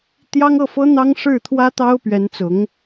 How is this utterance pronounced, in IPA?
t̪ j ɑ˥ ŋ ɤ˥˩ f ɤ˥ n̪ ɑ˥ ŋ ʂ ɻ̩˥˩ t̪ʰ w ä˥ t̪ ɑ˥ ʊ̯ p ɥ ɛ˧˥ n t͡s ʊ˧˥ ŋ

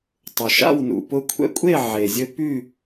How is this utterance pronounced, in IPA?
tˤ ʊ˩ ʃ a̰˥˨ w n ṵ˩ p ʊ˦ kʷʰ ɛ̰˦ kʷʼ e˥˨ ʕ e˩ zʲ ɘ˦ p y˥˨

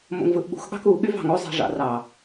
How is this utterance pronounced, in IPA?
m o̰ ŋ v ɯ ʔ ɓ ṳ x ɠ ɑ̤ k u ɠ y v ɑ̤ ŋ o zˤ i̤ ʐ ɑ̰ r ɑ

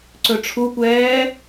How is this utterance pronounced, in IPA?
ǀ ɵ ʈ͡ʂʰ u kʷ ɛː

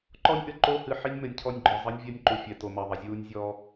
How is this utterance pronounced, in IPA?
ǃ ɔ˦ nʲ ʔ ɘ˨ ǃ o˦ h ɨ˨ ħ i˦ nʲ m ɘ˨ nʲ cʰ ɔ˦ nʲ ɡ͡ǃ ɔ˨ zˤ ɘ˦ nʲ vʲ ɐ˦ nʲ ǃ u˨ fʲ ɛ˨ t o˨ m ɐ˨ ðˤ ɐ˨ zʲ uː˦ nʲ zʲ ɔː˦

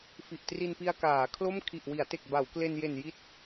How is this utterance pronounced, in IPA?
f i˨˩ ʔ t r i˧ n p i˧ a̯ k aː˩˦ kʰ l o˥˩ m kʰ i˨˩ ʔ w i˩˦ a̯ t e˨˩ k̚ b a˩˦ w k l e˧ n j e˨˩ n j i˦˥ t̚

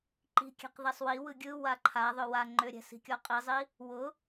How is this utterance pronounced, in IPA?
ǃ i̤ kʲ ɛ̤ q ð ɛ sˤ w i w ɯ ɡʲ ɯ w a ǃʰ a ðˤ ʏ w a ŋ͡ǃ ʏ ɾʲ ɛ̤ s i̤ kʲ ɔ qʼ i zˤ i | w ʊ

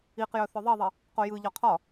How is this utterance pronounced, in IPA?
i q j œ θ œ ðˤ i ðˤ i | q o j ɯ ʎ ɒ qʰ ɒ

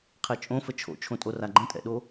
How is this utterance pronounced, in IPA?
qʰ e t͡ʃʼ õ f ə t͡ʃʰ o̰ t͡ʃʰ õ tʼ o r a ɡ͡ǃ ə̃ tʼ ɛ̰ ɗ o

